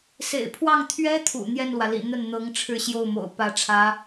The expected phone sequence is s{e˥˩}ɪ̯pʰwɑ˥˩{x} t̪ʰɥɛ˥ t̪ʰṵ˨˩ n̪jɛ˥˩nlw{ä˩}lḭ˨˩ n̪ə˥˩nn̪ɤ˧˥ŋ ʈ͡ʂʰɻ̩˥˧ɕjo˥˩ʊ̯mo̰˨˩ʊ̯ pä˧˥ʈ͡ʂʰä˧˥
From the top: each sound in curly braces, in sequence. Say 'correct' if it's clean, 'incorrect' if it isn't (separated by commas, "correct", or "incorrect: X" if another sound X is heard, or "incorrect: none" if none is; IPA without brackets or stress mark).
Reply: incorrect: ḛ˨˩, incorrect: ŋ, correct